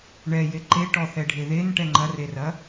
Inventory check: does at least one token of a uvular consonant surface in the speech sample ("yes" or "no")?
no